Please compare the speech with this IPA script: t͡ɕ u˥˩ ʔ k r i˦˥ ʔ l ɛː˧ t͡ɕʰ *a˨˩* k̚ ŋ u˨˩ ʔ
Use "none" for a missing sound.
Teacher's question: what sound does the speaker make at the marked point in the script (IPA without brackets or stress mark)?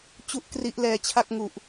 a˥˩